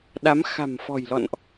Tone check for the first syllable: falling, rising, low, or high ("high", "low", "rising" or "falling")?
rising